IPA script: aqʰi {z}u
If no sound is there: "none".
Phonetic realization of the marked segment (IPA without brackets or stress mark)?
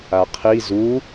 z